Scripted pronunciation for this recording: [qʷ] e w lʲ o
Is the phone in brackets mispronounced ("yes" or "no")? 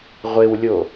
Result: yes